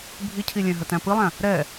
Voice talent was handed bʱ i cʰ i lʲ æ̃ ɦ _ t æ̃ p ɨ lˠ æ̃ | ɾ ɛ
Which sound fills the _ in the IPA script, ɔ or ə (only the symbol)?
ə